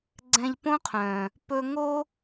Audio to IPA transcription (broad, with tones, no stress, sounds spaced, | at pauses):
ɡ͡ǀ ɛ̃˧ ʎ p õ˦ qʰ œ̃˨ | p ɵ˧ ŋ o˦